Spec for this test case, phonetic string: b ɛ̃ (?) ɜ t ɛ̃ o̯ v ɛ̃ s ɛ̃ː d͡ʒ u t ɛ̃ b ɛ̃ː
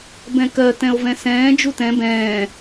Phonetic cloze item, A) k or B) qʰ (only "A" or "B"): A